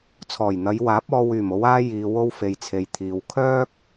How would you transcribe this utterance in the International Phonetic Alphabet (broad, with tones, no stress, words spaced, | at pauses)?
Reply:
t͡sʰɔː˨˩jn̪ɐ˨˧jwaː˨˥p̚ɔː˧ wyː˨˩mo˨˧waː˧ jiː˨wo˧wfe˨jt͡sʰe˨j t̪ʰiː˨wkʰœː˥k̚